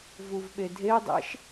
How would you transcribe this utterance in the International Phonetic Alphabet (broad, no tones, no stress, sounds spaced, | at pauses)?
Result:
v u v ɓ e dʱ e dˤ ḛ ʃ